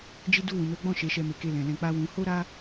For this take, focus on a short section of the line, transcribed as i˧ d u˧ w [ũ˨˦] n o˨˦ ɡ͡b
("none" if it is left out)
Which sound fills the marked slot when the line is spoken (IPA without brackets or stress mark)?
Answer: ũ˨